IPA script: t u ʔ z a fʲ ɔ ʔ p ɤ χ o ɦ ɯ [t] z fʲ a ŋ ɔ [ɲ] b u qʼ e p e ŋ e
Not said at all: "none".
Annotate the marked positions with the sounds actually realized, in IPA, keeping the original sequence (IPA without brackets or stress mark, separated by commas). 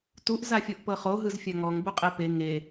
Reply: none, ŋ